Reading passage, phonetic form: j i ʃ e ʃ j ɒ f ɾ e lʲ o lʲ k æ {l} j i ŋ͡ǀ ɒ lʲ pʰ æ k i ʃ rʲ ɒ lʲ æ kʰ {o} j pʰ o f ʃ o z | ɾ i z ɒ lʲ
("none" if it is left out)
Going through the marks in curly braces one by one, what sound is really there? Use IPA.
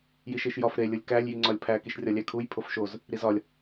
lʲ, u

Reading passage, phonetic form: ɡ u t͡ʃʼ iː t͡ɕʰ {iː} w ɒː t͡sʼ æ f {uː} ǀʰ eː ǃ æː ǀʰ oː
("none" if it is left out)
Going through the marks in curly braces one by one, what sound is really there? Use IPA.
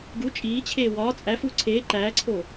eː, uː

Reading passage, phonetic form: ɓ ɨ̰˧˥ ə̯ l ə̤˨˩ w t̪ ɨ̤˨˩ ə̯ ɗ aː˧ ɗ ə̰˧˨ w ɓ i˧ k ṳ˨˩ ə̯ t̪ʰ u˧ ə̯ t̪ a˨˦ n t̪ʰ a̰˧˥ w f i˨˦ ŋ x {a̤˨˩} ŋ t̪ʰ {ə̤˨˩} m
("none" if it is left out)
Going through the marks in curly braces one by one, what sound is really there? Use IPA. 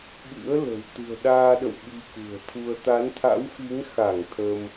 a˧˩, ə˧

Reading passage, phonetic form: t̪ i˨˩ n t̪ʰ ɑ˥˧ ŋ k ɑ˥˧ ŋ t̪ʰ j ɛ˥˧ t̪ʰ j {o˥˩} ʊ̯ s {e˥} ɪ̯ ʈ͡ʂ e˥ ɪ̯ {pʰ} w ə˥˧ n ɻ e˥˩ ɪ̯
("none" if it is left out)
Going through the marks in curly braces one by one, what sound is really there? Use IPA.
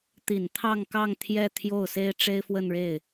o˥˩, e˥, f

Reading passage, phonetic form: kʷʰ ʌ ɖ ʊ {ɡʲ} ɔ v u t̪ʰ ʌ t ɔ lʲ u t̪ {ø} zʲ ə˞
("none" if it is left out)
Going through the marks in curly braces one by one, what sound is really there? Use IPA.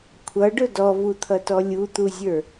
d, u

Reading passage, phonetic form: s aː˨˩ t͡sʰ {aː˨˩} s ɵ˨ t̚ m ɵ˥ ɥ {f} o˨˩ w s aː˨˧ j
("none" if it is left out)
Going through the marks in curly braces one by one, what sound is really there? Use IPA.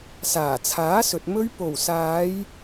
aː˨˥, p

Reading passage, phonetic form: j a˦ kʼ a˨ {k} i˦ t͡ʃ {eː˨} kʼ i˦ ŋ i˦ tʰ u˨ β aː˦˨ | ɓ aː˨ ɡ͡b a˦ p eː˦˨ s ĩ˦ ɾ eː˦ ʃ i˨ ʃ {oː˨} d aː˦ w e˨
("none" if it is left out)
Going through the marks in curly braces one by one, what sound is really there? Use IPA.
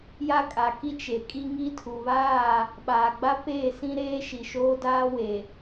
k, e˨, oː˦

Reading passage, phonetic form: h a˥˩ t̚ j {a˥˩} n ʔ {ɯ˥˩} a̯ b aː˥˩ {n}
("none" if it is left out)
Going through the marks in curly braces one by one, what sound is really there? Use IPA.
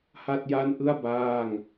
a˥˩, ɯ˥˩, ŋ

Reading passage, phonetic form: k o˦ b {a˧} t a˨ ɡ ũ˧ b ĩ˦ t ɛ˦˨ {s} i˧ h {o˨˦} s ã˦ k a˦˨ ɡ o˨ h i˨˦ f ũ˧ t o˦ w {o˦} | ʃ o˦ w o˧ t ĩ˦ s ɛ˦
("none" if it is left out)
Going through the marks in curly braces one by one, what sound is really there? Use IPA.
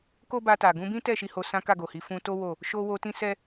a˧, ʃ, o˧, o˦˨

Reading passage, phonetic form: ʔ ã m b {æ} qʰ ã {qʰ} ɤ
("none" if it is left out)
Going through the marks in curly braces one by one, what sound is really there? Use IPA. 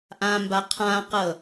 a, q

